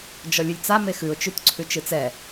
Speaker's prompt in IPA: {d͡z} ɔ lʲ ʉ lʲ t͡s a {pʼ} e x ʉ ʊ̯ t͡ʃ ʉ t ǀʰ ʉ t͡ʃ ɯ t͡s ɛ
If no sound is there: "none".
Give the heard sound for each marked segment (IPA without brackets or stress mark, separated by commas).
d͡ʒ, m